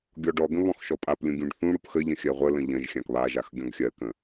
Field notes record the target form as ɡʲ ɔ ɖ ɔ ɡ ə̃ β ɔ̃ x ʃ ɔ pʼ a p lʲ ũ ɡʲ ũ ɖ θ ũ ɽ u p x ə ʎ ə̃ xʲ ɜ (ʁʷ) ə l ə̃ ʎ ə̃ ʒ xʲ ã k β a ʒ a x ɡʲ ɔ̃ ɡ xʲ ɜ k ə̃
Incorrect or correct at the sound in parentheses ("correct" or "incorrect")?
correct